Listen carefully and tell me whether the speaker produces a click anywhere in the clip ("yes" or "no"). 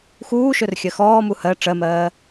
no